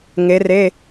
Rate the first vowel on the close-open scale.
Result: mid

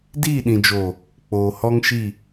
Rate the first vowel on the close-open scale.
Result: close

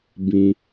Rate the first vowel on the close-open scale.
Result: close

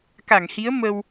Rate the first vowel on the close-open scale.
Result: open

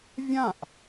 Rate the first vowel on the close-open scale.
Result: open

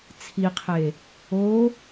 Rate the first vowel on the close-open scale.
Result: close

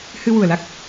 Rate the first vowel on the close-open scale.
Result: close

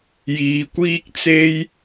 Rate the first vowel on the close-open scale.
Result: close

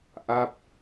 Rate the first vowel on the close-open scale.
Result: open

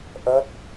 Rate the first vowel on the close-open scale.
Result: mid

